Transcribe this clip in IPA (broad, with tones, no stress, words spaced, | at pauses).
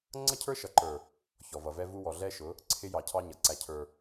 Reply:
ŋ͡ǀʌ˦cʰə˞˦ ʃʌ˨ǃə˞˨ | çɔ˨vʌ˨vɛ˦vu˦ wɔ˨ɮɛ˦ʃʊ˨˦ | ǀʰɪ˦jɑ˨cʰɑ˦ ɲʌ˨ ǀæ˦ cʰə˞˦